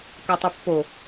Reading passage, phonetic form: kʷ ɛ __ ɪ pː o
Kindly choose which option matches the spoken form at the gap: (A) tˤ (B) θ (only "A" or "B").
A